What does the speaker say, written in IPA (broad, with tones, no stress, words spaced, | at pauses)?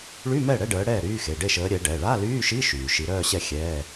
ɭy˧˥˧mɛ˥˩ ɽɛ˧˥˧ɖəː˨˦ ɽɛː˥˩ ɾyː˧˥˧xe˩˧˩ ɖe˥˩ʃəː˨˦ ɾʲɛ˨˦ɖɛ˩˧˩ ɭa˧˥˧lyː˧˥˧ʃi˧˥˧ ʃyː˩ʃi˨˦ɾœː˥˧ɕɛ˥˩ xʲɛː˧˥˧